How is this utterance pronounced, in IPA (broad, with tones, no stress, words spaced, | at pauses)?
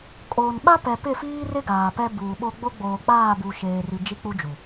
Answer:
kʼoː˨nɓa˦ pɛ˨ pɪ˦˨fiː˦rɪ˦ ɡaː˨pɛ˦ buː˨ɓo˦ ɡ͡bo˦ɡ͡boː˨k͡paː˦˨bu˨ ʃeː˨ri˨ d͡ʒi˦k͡pu˦d͡ʒu˨